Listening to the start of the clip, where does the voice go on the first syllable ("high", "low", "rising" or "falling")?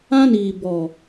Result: high